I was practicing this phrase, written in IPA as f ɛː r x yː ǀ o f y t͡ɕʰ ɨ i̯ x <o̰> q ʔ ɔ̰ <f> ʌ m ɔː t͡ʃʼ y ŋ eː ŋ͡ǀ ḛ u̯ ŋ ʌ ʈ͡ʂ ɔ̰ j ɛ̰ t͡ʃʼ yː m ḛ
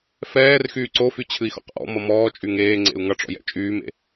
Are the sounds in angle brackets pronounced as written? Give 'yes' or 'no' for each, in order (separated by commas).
no, no